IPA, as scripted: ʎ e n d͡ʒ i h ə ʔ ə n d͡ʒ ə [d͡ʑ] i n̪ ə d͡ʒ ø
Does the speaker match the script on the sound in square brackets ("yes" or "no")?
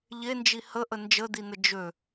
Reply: no